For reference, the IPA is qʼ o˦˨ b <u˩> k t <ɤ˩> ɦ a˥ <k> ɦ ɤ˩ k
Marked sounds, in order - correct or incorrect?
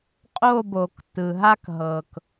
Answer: incorrect, incorrect, correct

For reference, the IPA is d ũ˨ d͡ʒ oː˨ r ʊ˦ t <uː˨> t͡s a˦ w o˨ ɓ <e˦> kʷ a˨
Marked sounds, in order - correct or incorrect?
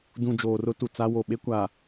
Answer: incorrect, correct

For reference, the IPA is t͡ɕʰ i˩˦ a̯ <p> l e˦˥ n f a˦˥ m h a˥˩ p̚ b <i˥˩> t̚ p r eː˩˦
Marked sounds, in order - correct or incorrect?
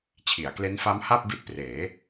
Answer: incorrect, incorrect

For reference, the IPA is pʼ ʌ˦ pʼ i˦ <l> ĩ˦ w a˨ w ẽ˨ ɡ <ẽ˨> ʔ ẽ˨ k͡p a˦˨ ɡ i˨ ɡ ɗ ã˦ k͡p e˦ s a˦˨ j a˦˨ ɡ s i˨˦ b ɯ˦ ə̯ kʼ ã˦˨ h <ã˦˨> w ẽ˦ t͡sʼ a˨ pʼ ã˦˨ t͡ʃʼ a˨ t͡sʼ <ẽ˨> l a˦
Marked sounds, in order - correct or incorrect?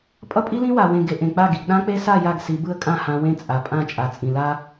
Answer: correct, incorrect, incorrect, incorrect

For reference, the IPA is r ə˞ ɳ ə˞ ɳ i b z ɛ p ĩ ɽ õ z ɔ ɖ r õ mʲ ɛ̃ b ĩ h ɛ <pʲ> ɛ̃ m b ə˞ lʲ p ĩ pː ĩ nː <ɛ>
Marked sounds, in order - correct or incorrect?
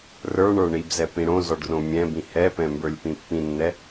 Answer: incorrect, correct

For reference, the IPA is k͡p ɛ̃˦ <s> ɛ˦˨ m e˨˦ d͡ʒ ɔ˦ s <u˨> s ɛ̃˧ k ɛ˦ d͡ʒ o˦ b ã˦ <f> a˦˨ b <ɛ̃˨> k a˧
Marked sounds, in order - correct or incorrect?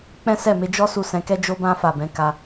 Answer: correct, incorrect, correct, incorrect

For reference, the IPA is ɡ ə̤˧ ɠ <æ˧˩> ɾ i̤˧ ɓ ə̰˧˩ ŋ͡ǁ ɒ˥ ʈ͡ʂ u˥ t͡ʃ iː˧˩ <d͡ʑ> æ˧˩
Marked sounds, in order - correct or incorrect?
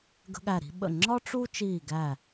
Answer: correct, incorrect

